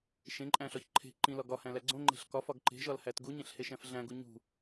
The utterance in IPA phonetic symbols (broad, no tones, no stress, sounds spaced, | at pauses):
ʃ ẽ ǃʼ æ̃ ɬ ɒ ç ǃʰ e̤ ǃ ĩ l ɒ ɡ ɒ h æ̃ l æ ɡ͡ǀ õ ŋ͡ǃ e̤ ɬ k ɒ f ɒ ɡ ǃ e̤ ʒ ɒ l h æ t ɡ u ɲ ẽ ɬ h e ʃ æ̃ f ɮ æ̃ ɡ u ɲ ṳ